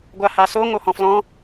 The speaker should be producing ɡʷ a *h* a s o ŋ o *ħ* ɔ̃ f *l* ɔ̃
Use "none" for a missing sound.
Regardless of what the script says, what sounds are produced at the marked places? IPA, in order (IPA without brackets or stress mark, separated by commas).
h, h, l